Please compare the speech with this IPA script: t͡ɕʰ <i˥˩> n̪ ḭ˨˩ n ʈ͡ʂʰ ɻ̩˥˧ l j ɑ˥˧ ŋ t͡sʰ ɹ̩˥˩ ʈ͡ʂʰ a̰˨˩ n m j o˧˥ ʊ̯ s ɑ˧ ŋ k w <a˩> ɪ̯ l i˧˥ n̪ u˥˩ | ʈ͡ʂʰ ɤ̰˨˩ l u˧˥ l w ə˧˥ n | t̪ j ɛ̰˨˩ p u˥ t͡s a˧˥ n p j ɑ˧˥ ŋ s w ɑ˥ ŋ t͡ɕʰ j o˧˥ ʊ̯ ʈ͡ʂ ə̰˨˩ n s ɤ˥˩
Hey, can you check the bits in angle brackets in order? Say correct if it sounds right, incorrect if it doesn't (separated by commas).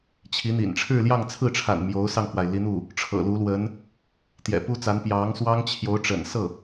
incorrect, correct